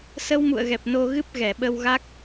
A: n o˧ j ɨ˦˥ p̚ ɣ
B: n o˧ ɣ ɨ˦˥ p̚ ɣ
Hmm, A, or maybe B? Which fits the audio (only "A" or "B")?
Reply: B